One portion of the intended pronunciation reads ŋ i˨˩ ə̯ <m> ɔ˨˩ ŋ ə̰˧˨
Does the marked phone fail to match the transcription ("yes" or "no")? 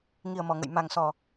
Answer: no